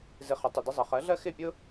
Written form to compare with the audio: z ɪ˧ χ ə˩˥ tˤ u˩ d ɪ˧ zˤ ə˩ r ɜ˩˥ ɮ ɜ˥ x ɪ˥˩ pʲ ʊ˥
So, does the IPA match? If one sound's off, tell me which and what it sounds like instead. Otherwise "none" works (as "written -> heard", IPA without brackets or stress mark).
r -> χ